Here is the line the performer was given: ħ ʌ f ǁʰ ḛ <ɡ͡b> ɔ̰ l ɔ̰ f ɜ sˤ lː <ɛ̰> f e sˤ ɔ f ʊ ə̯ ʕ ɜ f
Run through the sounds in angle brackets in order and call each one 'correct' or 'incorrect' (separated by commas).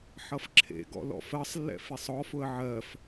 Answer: incorrect, correct